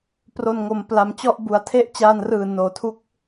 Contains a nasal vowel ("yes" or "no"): no